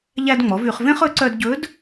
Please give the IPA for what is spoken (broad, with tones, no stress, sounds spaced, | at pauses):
ʎ æ˧ d ŋ͡m ɔ˩˧ v y˩˧ χ v ẽ˥ χ ɵ˧˥ ǀ œ˧ d ɟ ɵ˧˥ d